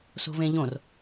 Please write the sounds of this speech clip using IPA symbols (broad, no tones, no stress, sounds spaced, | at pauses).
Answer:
s o̤ v ẽ ʎ õ r